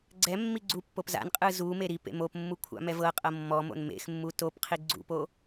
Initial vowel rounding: unrounded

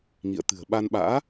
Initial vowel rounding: unrounded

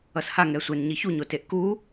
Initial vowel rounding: unrounded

